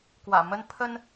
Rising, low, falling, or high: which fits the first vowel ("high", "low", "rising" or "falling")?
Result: low